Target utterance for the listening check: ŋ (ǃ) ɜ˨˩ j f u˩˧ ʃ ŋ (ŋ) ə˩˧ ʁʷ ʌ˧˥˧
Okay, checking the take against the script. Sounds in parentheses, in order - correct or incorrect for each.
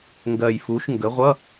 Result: incorrect, incorrect

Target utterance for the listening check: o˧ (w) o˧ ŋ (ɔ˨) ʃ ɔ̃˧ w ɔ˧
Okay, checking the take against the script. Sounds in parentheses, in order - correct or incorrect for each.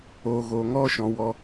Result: incorrect, incorrect

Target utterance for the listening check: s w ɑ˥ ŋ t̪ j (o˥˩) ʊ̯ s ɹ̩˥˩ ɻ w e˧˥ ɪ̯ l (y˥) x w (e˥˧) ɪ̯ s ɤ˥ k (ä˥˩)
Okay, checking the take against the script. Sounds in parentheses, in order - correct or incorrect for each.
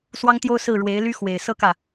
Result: incorrect, correct, incorrect, correct

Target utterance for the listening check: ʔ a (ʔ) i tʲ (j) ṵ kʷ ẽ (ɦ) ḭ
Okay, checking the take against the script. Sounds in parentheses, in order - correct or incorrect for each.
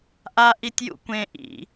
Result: correct, correct, incorrect

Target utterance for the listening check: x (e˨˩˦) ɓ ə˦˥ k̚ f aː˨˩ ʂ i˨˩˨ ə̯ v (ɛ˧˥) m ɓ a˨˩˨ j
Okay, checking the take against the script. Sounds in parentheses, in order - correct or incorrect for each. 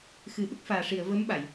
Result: incorrect, incorrect

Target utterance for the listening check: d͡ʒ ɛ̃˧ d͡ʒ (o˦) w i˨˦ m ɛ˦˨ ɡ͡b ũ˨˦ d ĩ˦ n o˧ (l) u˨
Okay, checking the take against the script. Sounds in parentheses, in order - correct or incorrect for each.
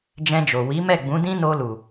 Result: incorrect, correct

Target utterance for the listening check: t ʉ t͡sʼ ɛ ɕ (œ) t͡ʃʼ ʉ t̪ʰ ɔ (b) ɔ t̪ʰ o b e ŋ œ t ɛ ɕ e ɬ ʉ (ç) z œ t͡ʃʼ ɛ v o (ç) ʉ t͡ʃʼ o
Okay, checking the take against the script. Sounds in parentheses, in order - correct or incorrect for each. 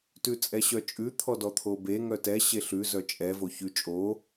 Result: correct, incorrect, incorrect, correct

